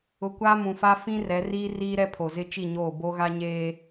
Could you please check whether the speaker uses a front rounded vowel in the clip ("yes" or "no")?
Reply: no